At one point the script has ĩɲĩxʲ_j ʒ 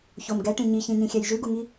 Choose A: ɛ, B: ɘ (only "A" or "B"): A